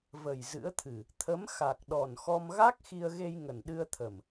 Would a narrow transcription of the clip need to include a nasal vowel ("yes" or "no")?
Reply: no